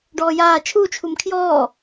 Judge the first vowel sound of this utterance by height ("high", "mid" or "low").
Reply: mid